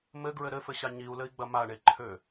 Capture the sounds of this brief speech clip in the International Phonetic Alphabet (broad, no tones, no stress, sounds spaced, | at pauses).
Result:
m ɘ ɡ ɹ ɘ ɾ ɘ f ɘ ɕ a ɲ i u̯ l ɘ i̯ ɡ͡b ɐ m a ɳ e ǃʰ ø